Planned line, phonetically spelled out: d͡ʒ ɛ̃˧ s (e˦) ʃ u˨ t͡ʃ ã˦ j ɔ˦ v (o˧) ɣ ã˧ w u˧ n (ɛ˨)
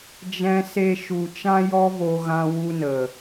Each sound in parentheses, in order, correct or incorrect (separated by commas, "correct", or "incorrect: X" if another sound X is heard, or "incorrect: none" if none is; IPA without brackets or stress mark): incorrect: e˧, correct, incorrect: ə˨